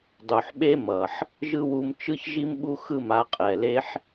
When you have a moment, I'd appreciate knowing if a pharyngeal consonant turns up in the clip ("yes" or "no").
yes